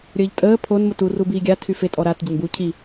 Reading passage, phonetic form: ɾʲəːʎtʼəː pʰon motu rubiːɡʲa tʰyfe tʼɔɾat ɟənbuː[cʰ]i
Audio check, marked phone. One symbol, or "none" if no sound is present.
cʰ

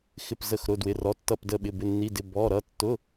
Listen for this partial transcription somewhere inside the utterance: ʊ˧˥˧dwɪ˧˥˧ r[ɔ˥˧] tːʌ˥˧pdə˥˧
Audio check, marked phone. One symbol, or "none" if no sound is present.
ɔ˧˥˧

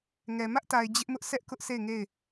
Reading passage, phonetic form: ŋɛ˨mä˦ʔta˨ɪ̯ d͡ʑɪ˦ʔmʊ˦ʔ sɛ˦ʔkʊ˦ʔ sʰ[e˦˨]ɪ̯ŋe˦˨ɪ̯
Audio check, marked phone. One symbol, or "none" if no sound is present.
e˦˨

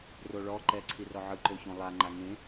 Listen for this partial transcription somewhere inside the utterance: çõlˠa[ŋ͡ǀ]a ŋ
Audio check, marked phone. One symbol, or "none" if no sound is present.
ŋ͡ǃ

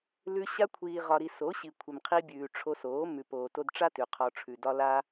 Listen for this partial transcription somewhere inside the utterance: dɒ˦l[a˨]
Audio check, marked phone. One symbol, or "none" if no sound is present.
a˦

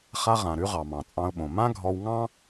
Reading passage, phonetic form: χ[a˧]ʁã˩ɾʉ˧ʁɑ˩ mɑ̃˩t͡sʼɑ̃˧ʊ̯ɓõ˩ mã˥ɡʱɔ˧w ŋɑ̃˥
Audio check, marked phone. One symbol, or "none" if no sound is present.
a˧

